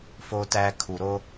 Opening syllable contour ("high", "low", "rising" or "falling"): high